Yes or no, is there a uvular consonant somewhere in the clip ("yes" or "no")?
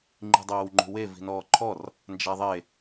no